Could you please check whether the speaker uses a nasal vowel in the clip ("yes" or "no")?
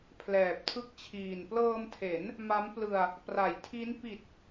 no